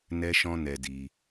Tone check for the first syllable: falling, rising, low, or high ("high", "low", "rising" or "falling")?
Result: high